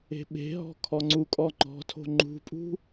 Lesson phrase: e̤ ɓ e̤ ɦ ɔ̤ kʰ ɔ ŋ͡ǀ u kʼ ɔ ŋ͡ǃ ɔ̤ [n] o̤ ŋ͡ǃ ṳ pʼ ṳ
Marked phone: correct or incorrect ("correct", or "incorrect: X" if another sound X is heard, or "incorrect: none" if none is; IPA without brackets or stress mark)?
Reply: incorrect: tʰ